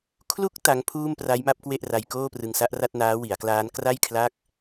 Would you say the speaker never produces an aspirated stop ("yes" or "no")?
no